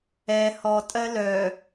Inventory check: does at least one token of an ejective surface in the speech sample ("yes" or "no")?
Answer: yes